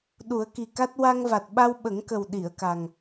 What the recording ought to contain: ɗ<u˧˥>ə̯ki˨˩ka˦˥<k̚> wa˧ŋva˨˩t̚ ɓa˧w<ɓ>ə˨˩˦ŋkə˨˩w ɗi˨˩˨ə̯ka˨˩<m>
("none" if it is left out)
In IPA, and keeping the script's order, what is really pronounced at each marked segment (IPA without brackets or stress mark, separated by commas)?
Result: u˨˩˦, t̚, ɓ, ŋ